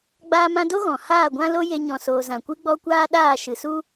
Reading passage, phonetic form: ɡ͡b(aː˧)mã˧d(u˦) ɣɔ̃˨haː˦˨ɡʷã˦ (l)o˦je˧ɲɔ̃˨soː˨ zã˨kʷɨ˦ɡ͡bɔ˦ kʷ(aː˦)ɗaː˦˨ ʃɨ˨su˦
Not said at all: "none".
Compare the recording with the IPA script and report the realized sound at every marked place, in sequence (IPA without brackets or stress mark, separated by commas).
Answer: aː˧, o˦, l, aː˦